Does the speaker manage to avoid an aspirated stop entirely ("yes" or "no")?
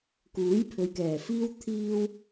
no